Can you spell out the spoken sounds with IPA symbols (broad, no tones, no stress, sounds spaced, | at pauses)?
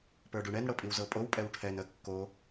p ə˞ ɖ u ɳ ɛ n ɽ ɤ pʼ i w z ɤ pʼ o w pʼ ɛ w ʈʰ ɛ n ə kː o